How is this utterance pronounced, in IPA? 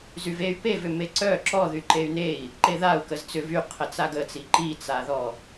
zyvey̯ pevʏme ǀœ ǁɔ ðyǃey̯nei̯ | ǃeðau̯ kəzt͡sʏv yqʰə t͡saɡət͡si ǃit͡saðɔ

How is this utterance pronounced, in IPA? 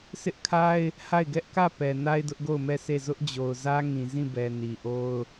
sʰɪ˦ʔkʰa˦ɪ̯ | ha˦˨ɪ̯ɡɛ˦ʔkä˦˨pɛ˨ na˦ɪ̯dʊ˦ʔɡo˦˨ʊ̯mɛ˦˨ sʰe˦˨ zʊ˦ʔd͡ʑo˨ʊ̯zä˦ ŋĩ˨zĩ˦˨bɛ˨ ni˨ʔo˦ʊ̯

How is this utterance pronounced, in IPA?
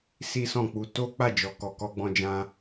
si˦sɔ̃˦˨k͡pu˧ to˦ k͡pa˦˨d͡ʒɔ˨ kɔ˨kɔ˧ɡ͡bɔ̃˧d͡ʒã˧

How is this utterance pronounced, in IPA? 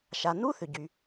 ʃa˩nu˥θʏ˩ɟy˩

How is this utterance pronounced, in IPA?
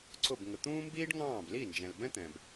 ǀʊ˦˨b ŋə˨t̪ũː˦mbiː˦ɖŋɑ̃ː˦˨b li˦˨nd͡ʒɛ̃˨lbɛ̃˦t̪ɛ̃˨b

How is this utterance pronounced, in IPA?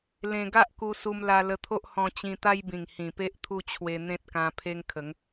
lẽ˧ɡa˦ʔku˧ su˧mla˧lə˧t̪ʰo˦ʔ hɔ̃˧t͡ɕĩ˧t̪a˦jbĩ˨˩ŋ hĩ˨˩pe˦ʔt̪ʰu˦t͡ɕʰwe˧ n̪ẽ˦t̚kã˧pʰe˦ŋkʰə˨˦ŋ

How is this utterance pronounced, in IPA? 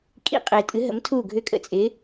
kʼḭ˦qʼɪː˨ tʼɨ˨˥ɦə̰˨˥m tʰu˥˩ɡʱʏ˥˩kʼə̰˥˩t͡sʼɪ˨˥

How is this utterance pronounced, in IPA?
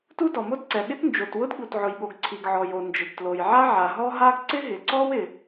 tu˥dɔ˩mo˥dǀɛ˩ ɠɪ˥tnd͡ʒo˩twʊ˥d ɠu˩tʕʊ˩jɠo˩ɡ ǀʰi˩ɡʕɔ˩jo˩ nd͡ʒɪ˩ɡtlo˩jʕa˥ ʕa˩ɦɔ˥ɦa˥ɡ ǀɪ˥ɦɪ˩ǀɔ˥w ɪ˩

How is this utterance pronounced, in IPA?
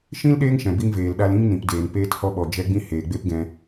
ʃĩ˦l ɗeː˦ŋ ʃɛ̃˨bi˧ŋveː˨l ɗa˧lĩ˦ŋnĩ˨pdeː˨n peː˧thɔ˧ɓɔ˨ d͡ʒɛ˦ɡ͡bĩ˦ heː˨ɡ͡be˦pɡɛ̃˧

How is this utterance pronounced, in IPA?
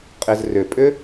qʼɪz rʏpʼʏ

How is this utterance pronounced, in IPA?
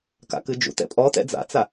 ka̰kɨd͡ʒṵtɛ̰ pʼɔtɛ̰ d͡za̰t͡sa

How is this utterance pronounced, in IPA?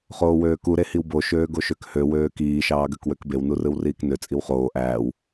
χoːwøːku ɾehiwbo ʃøːɡoʃøkhø wøːkiː ʃɑːɡøkwøkbew nurɯwriːknø t͡sʼiwχoː ʔæːw

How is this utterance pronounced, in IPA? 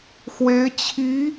xwe˧˥ɪ̯t͡ɕʰi˧˥

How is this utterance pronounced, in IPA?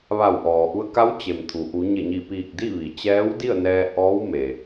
ʋa˧˩wʔɔː˩ʔu˧ə̯ ka˧˥wt͡ɕe˩m t̪ʰu˩ ʔu˩˧ɲe˧˩ ɲi˧˩ piː˧˩k̚ di˥˨ ʋi˩t͡ɕɛː˧˥wdi˥˨ə̯nɛː˧ ʔɔː˧˥wme˩

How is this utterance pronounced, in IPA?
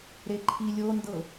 ɾeǃʰilʲ ondɤ

